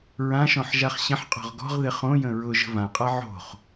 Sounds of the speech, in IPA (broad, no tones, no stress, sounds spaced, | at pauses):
ɹ ã ʃ ɔ̃ ħ ʒ a χ ɕ ə̃ ħ qʼ ɔ̤ ʁ ɡ ɔ̤ ʁ ð ɪ χ õ j ə̃ ɹ ʊ ʒ ə̤ v ã qʼ a ʕ o̤ χ